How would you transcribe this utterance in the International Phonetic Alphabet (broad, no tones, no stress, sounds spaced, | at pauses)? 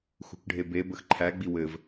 x ṳ k ɖʱ e b e b ə x ǃʰ æ ɡ͡b i w ɘ v